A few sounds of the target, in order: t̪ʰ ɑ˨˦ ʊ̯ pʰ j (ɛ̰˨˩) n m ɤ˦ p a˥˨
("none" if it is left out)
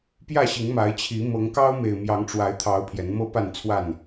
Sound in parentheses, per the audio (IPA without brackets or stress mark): ɛ˨˦